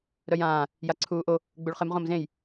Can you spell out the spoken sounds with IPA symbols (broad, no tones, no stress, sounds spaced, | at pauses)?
ɾ œ j ãː | j a ǀʰ uː ʔ o | ɡ͡b u ɭ χ ɪ m ʁ õ m z ẽ j